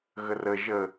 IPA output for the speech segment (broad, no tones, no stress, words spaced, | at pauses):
ɣərə ʒə